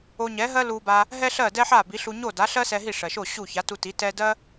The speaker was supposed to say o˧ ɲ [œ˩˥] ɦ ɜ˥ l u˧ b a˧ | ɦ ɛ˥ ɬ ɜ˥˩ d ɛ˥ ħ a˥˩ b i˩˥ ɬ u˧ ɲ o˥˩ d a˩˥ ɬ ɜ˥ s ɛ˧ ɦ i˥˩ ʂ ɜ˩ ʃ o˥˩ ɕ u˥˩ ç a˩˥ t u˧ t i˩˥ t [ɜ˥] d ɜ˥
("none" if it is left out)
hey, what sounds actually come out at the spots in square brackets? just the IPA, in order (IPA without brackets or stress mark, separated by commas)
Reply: ɛ˩˥, ɛ˥